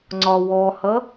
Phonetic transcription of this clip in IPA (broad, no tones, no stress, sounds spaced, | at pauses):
ŋ͡ǀ ɒ w ɔ h ʌ